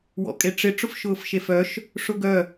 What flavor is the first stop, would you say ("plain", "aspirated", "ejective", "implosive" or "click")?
ejective